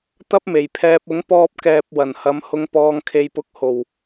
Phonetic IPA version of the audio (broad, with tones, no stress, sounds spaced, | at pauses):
t̪ ɐ˥ p̚ m e˨˩ j pʰ ɛː˧ p̚ ʊ˨˧ ŋ p ɔː˧ p̚ k ɛː˨ p̚ w ɐ˨˩ n h ɐ˨˧ m h ʊ˧ ŋ p ɔː˧ ŋ kʰ e˧ j p ʊ˧ k̚ h o˨˩ w